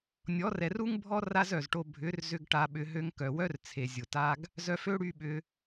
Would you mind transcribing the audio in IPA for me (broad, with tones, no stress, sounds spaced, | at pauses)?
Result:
nʲ ɔ˨˦ r ɛ˨ r u˦ ŋ bʱ ɔ˦ r a˦ z œ˨ z ʈ o˧ bʱ ʏ˨˦ r z ʏ˧ ɡ ʈ a˧ ɓ ʏ˧ ɦ ø˧ ŋ k œ˨ w œ˦ r t͡sʰ e˨ zʲ ʊ˨ t a˦ ɡ | z œ˧ f ø˦ ɽ y˧ ɓ ʏ˧